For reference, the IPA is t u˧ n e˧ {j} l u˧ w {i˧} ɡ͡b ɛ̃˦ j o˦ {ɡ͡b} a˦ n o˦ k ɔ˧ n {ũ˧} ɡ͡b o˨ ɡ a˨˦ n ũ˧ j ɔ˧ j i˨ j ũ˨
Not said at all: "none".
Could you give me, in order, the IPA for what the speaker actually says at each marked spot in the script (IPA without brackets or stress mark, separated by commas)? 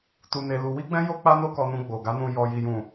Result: none, i˦, k͡p, ũ˧